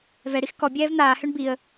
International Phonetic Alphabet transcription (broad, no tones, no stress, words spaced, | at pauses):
vɛɽix kɔ bʲɛːvn̪aːhøɳ biə̯